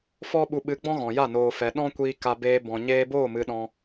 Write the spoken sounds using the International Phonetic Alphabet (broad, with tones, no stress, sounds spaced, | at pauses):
f ɔ˦ ɓ u˧ ɓ ɨ˧ ɡ͡b ɔ̃˦ ɣ ɔ̃˨ j a˦˨ n oː˨ f ɛ˨ ɗ ɔ̃˦ kʷ iː˧ k a˧ b eː˧ b ɔ̃˨ ɲ eː˧ b oː˦˨ m ɨ˧ ɗ ɔ̃˧